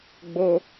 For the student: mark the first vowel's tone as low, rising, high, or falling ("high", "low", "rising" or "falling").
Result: high